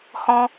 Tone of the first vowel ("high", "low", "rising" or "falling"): high